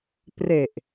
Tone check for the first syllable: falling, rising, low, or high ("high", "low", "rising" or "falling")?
low